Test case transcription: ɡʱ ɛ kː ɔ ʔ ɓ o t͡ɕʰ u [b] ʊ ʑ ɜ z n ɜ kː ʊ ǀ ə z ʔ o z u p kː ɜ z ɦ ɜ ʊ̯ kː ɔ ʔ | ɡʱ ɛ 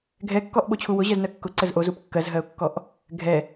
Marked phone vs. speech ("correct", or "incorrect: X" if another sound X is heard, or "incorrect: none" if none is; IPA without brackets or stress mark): incorrect: w